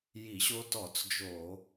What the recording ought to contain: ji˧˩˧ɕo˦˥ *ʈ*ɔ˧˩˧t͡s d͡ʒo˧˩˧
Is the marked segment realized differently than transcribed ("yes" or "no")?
yes